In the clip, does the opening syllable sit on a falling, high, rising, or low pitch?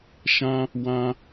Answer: high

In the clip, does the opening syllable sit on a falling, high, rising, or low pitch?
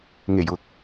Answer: low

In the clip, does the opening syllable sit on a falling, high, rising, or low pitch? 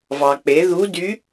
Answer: low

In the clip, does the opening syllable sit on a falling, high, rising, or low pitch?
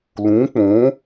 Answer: rising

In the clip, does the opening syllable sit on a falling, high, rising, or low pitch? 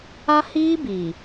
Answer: high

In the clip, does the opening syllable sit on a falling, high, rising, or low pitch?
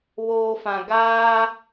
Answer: low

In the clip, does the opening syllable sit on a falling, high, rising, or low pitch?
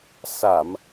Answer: low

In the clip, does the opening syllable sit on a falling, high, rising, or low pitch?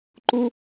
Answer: high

